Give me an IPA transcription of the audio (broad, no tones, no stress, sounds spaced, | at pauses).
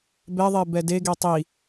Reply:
b ɛ ðˤ e b ɛ d e ɡ e tˤ i